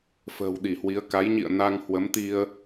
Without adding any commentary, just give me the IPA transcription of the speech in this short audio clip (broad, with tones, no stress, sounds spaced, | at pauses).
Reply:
f ə̤ː˨˩ w ɗ i˧˩ h w i˨˦ ə̯ k a˨˦ j ɲ ḭ˧˨ ə̯ n a˧ ŋ h w ə˨˦ m t̪ i˧ ə̯